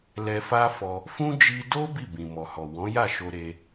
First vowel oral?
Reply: yes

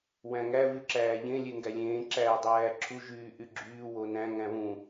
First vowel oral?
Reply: no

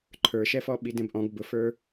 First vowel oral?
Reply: yes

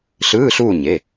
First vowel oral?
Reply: yes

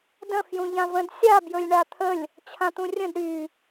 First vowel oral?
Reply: no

